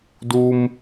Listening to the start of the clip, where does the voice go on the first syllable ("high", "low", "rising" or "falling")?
high